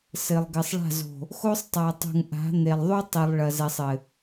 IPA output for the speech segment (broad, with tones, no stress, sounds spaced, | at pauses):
s ɘ˨ lˠ ɡ ɘ˨ sˤ ɭ a̤˦˨ z o̤˨ | x o˦ sˤ tˤ a˨ tˤ ṳ˨ ŋ ʔ a̤˨˦ n̪ e˨ lˠ ðˤ u˦ tˤ i˨ lˠ ɭ ɐ˨ z ɛ˨ sˤ ɘ˨